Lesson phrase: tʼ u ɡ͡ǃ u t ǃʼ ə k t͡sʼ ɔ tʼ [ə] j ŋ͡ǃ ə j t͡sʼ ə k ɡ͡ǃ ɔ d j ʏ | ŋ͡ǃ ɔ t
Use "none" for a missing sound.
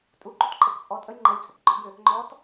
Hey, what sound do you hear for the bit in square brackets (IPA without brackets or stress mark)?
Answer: ə